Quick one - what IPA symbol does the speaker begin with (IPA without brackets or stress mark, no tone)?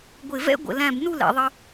ɡʷ